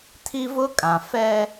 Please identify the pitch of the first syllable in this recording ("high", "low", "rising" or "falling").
high